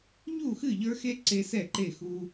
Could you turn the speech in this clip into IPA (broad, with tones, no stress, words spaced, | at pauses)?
ʎu˥˨xɨ˥˨ʎə˞˦xe˦ ǀe˦sɛ˥˨ ǃe˥˨ xu˦